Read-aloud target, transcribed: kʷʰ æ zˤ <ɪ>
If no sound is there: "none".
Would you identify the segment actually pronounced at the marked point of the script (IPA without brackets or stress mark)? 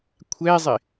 ɪ